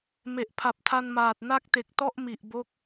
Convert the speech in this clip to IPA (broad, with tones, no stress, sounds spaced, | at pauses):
m e˨˩ ʔ pʰ a˨˩ p̚ tʰ a˧ n m aː˨˩ t̚ n a˥˩ k̚ t e˨˩ k̚ t ɔ˥˩ ʔ m i˨˩ ʔ b o˦˥ k̚